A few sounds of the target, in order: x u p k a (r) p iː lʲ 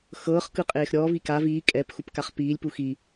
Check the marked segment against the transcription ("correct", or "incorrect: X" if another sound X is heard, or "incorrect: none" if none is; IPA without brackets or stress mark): incorrect: χ